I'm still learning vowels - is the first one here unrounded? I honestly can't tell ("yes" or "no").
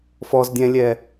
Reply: no